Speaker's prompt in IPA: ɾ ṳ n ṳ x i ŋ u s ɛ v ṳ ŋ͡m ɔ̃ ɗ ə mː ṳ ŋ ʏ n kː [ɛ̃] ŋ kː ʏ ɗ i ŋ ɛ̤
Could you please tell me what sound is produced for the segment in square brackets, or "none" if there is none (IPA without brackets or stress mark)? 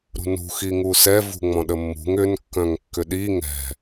œ̃